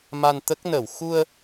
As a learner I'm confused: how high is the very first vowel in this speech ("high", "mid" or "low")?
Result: low